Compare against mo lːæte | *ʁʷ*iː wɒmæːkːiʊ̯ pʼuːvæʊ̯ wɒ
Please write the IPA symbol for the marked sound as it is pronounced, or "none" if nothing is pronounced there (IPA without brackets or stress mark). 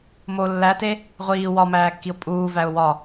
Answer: ʁʷ